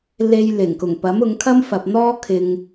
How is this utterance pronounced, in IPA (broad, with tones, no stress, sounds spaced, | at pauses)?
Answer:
l e˧ j l ɪ˨˩ ŋ k ʊ˨˩ ŋ p ɐ˨˥ m ʊ˨˧ ŋ kʰ ɐ˥ m f ɐ˨ p̚ n̪ ɔː˥ kʰ ɪ˧ ŋ